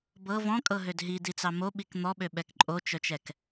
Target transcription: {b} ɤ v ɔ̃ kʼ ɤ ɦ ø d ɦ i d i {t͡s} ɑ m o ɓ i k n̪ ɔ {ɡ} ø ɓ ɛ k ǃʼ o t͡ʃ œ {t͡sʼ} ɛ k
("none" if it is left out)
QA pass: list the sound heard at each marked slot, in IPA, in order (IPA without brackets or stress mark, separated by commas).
b, t͡s, ɓ, t͡ʃ